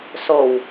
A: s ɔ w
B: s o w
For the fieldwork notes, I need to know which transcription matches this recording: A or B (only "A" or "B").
B